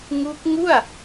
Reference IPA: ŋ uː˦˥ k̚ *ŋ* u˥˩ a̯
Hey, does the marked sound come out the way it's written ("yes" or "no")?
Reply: yes